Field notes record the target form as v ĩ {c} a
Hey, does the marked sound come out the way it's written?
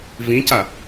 yes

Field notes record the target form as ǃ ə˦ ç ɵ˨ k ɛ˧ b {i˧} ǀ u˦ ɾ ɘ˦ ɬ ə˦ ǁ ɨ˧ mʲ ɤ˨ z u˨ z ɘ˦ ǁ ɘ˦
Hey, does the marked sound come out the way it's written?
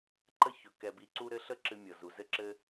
yes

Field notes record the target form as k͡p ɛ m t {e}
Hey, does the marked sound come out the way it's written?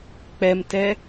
no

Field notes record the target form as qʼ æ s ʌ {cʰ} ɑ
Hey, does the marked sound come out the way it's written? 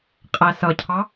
yes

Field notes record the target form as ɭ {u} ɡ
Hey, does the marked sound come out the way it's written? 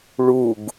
yes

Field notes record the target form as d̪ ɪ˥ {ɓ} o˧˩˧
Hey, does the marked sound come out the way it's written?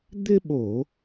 yes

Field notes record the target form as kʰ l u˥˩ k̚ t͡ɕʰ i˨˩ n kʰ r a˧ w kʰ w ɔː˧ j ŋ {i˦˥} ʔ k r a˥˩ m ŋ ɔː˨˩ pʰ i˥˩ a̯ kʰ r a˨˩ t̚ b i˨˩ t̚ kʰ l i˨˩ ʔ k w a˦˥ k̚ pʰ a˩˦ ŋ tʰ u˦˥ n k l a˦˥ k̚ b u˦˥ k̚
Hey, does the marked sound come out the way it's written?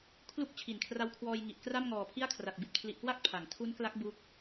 no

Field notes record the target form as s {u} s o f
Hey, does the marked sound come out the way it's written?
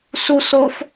yes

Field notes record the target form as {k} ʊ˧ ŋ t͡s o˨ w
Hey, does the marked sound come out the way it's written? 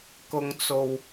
yes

